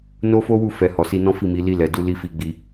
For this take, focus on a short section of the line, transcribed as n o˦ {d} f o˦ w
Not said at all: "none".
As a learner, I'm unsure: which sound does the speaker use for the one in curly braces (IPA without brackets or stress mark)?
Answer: none